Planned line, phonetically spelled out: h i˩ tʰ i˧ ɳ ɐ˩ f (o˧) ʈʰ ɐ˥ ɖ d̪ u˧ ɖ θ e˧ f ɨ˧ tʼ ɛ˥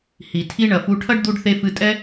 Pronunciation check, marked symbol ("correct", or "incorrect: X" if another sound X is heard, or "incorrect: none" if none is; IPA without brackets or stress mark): incorrect: u˧